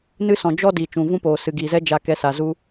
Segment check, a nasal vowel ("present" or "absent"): present